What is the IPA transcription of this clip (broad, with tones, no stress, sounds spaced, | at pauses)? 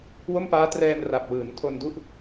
w o˥˩ m p aː˦˥ t r ɛː˧ n r a˨˩ p̚ w ɯː˩˦ n tʰ o˧ n d u˥˩ ʔ